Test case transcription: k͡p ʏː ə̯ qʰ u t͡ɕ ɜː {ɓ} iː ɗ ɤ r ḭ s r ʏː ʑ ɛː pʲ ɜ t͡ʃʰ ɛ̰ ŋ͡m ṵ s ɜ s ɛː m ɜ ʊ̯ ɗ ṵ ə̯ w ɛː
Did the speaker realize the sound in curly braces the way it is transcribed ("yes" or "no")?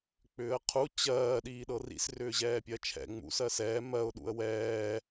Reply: no